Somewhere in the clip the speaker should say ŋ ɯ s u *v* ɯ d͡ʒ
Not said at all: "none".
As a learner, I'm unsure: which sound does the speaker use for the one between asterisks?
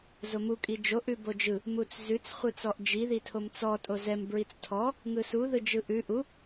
ð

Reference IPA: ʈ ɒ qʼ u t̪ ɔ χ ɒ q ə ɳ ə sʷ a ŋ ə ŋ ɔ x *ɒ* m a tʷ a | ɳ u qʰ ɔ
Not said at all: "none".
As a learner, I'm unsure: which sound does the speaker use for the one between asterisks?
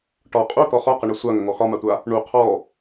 ɒ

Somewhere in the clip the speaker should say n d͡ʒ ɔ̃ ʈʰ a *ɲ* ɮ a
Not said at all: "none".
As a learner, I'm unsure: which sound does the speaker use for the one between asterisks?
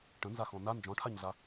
ɲ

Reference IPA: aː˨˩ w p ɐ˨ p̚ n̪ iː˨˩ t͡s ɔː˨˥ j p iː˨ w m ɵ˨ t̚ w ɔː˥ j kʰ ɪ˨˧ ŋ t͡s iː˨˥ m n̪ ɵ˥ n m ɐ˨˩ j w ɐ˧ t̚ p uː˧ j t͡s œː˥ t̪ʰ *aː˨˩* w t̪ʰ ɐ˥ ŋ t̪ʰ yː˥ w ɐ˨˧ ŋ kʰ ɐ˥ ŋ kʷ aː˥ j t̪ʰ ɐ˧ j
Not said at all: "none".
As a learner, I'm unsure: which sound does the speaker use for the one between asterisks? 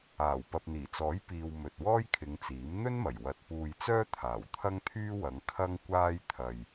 aː˨˩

